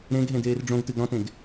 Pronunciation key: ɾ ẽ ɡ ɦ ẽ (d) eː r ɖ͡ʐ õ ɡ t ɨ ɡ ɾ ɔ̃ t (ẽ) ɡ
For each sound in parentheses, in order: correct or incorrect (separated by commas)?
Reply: correct, correct